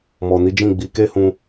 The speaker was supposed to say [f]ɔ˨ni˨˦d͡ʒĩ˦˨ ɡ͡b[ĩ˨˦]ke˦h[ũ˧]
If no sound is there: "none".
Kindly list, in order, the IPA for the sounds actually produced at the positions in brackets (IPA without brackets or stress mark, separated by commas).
m, i˨˦, ũ˧